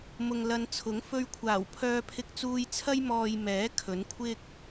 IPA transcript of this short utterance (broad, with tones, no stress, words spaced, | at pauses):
mʊ˨ŋlɐ˨˧nt͡sʰʊ˨˥ŋ fɵ˧ɥkʷʰaː˨˩w pʰœː˧pʰɪ˧k̚t͡suː˧jt͡sʰɐ˥j mɔː˨j mɛː˨˥ kʰɵ˨˥nkʷʰɪ˥k̚